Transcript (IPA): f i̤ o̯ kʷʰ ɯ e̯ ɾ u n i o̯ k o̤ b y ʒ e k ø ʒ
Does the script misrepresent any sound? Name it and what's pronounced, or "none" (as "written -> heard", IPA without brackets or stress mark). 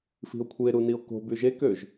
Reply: none